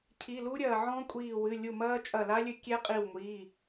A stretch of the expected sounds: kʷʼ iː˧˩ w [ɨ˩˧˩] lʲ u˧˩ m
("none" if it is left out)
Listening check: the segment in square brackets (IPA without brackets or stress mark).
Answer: ɨ˩˧˩